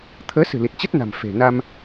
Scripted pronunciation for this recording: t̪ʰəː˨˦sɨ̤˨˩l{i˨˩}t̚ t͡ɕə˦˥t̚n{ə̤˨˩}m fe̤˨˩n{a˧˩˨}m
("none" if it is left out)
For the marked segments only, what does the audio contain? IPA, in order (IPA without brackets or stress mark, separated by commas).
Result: i˨˩, a̤˨˩, a˧